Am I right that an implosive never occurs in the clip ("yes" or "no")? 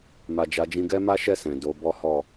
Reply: yes